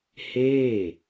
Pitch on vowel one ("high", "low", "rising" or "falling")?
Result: falling